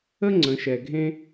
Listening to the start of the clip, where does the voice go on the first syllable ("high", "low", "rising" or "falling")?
high